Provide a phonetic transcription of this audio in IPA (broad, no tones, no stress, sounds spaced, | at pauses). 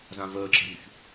z ã v əː ǁ ə̤ ɾ ṳ ç